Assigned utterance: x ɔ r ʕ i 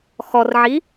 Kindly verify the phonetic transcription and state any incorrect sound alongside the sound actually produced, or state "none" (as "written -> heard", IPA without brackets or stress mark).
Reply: none